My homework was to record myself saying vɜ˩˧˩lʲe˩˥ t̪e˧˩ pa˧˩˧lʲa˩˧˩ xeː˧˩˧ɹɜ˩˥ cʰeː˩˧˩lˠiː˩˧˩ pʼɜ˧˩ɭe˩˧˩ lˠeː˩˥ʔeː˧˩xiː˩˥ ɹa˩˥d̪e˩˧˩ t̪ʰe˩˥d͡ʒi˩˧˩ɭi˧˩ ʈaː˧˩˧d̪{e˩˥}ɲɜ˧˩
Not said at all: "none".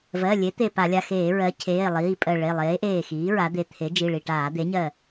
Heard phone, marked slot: e˩˥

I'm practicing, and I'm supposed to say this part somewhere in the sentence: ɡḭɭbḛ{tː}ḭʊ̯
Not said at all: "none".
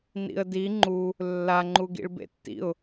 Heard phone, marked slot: tː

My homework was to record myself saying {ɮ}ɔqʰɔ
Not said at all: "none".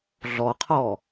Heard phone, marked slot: ɮ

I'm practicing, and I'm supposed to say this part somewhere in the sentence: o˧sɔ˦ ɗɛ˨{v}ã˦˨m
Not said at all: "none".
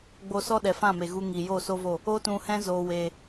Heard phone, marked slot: f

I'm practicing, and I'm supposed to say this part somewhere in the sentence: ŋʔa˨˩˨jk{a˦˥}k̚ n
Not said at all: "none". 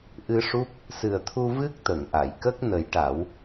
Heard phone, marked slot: ə˦˥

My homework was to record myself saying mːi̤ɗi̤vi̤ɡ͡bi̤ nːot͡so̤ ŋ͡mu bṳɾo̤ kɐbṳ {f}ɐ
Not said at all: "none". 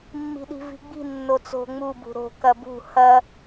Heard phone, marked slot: h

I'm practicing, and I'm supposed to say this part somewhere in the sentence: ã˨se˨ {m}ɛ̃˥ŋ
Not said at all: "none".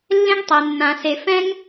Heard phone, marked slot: f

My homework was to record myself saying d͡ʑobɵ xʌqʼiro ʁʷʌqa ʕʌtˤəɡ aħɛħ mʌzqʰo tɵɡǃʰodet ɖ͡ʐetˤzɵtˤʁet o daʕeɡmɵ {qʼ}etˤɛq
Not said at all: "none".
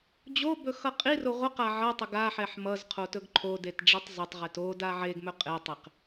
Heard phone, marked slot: qʼ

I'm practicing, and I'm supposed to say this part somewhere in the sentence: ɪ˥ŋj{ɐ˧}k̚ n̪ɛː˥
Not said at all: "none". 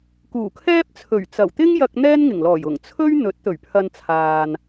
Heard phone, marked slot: ɐ˧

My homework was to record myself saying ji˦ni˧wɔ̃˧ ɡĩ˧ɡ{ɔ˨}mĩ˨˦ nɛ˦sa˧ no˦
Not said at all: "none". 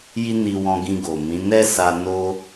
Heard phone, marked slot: o˨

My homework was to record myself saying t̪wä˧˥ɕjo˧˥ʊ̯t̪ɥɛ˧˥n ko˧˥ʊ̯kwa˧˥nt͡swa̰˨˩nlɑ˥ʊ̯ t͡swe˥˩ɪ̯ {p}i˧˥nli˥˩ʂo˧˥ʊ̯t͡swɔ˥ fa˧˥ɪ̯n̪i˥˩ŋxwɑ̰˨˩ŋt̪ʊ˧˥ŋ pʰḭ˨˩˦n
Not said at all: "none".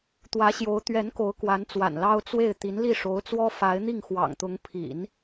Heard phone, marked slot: t̪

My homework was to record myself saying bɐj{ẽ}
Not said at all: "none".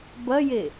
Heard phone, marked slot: e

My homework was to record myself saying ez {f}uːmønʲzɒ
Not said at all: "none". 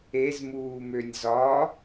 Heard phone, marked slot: m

